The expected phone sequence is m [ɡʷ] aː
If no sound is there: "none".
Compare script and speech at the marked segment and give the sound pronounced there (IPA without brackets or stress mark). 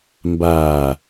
b